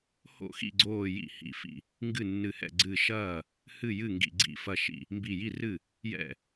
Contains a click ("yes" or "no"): yes